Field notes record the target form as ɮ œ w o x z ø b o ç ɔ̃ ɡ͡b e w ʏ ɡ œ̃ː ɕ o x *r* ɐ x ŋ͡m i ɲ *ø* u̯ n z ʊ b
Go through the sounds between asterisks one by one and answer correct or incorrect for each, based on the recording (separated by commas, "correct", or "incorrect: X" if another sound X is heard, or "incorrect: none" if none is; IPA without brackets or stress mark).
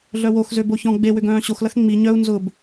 incorrect: l, incorrect: œ